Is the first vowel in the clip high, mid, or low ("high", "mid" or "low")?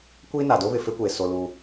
high